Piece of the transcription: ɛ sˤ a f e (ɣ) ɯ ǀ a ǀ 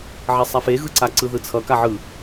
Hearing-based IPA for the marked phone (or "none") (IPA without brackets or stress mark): ɣ